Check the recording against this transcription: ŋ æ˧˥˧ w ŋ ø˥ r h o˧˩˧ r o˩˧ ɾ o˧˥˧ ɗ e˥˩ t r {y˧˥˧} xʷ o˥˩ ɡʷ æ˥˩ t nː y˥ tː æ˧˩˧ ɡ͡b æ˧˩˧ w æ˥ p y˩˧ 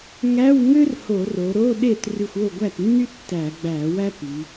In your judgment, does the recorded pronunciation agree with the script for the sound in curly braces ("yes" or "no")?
no